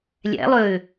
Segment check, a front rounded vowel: present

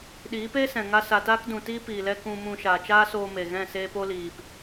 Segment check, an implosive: present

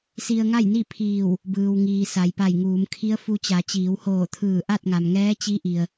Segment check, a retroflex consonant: absent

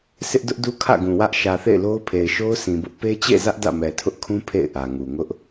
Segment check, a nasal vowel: present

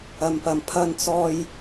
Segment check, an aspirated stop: present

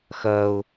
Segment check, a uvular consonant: absent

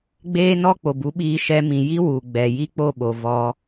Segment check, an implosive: present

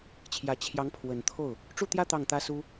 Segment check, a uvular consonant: absent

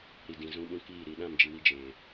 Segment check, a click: absent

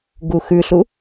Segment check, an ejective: absent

